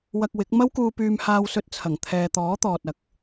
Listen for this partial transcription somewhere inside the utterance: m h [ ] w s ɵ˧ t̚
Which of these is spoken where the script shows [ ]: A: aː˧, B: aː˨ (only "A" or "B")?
A